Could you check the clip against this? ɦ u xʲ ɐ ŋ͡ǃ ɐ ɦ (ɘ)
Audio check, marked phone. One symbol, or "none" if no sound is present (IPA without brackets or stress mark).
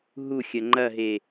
e